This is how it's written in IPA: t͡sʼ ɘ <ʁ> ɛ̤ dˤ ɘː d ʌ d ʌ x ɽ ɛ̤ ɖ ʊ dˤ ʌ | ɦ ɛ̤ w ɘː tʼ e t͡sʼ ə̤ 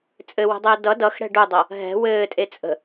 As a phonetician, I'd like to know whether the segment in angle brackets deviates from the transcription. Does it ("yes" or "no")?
yes